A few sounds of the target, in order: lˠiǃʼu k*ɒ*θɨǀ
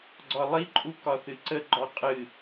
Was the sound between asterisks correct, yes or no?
yes